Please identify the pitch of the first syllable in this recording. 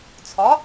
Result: rising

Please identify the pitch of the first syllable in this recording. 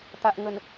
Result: low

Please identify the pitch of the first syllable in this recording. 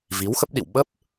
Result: rising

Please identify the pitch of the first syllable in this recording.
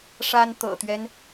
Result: high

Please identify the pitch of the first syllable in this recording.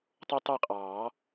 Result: high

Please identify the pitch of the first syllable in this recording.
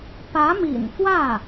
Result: rising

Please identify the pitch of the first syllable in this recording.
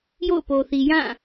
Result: falling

